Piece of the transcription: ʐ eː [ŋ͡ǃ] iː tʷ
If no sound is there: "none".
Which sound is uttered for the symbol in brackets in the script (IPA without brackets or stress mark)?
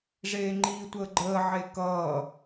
ŋ͡ǃ